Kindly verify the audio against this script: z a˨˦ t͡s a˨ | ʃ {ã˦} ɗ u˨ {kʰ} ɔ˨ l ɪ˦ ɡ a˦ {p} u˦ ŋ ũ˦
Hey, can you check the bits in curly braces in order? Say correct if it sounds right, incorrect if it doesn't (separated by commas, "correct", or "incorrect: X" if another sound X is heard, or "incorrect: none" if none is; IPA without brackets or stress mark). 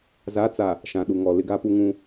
incorrect: ã˨, incorrect: ŋ, correct